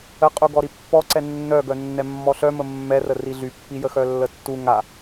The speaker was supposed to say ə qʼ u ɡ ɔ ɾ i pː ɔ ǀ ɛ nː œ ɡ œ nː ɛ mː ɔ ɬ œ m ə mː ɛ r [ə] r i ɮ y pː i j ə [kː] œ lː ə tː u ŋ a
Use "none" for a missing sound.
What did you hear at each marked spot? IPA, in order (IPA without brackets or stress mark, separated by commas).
ə, x